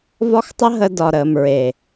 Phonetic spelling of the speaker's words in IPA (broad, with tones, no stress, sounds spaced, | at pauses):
v ɒ˦ x tˤ ə˦ ɦ ə˧ d ɒ˨ ɾ əː˨ m ɹ e˨